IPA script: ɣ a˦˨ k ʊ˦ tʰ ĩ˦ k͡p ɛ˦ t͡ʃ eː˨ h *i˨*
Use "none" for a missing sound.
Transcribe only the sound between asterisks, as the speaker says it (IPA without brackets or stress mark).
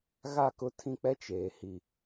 i˨